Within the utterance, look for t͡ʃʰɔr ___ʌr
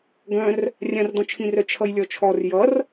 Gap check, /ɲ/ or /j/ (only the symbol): j